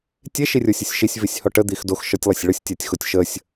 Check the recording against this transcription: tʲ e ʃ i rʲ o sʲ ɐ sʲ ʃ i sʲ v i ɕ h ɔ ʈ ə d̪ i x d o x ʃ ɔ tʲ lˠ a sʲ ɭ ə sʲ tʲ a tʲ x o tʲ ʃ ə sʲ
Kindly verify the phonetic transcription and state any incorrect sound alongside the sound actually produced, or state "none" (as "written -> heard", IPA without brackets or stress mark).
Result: ɕ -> sʲ